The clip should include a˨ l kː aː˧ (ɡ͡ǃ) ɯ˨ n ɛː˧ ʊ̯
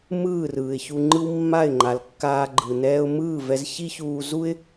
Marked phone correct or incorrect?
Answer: correct